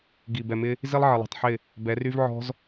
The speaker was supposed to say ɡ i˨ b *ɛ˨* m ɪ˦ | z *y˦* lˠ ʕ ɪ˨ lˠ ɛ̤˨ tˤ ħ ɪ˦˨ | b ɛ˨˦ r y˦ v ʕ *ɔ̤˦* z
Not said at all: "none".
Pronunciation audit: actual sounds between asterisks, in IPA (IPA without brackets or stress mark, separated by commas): ɛ˨, i˦, ɔ̤˦